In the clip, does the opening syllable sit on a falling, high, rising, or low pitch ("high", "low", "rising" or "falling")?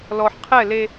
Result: low